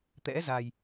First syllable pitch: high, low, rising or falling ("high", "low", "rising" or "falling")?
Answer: rising